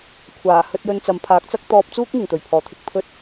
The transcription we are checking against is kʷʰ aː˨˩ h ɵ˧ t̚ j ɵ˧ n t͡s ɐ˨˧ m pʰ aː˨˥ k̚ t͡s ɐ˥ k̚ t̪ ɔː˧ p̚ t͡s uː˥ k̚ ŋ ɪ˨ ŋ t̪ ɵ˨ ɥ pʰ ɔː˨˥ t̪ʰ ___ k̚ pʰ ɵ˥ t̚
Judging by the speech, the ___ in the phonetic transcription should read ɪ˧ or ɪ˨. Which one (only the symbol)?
ɪ˧